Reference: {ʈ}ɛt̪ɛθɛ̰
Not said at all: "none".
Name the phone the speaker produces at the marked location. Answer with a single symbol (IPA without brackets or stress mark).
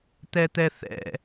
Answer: t̪